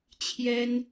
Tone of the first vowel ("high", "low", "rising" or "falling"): high